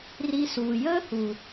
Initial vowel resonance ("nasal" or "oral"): oral